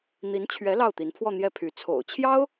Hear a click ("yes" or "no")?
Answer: no